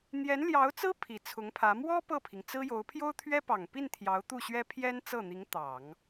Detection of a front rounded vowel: absent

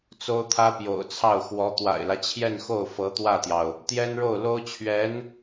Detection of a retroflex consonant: present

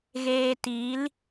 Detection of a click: absent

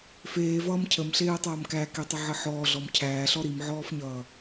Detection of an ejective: absent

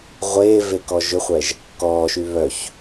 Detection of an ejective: absent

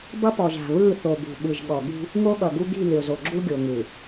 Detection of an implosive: present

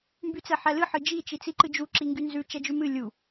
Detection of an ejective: absent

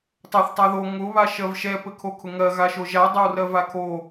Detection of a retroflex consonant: absent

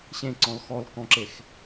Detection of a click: present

